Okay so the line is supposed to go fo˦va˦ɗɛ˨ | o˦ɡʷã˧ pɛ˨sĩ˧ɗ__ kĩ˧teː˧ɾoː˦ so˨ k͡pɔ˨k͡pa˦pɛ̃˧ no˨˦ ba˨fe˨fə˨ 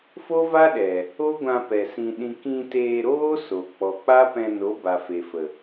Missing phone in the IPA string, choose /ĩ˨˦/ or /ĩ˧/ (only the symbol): ĩ˧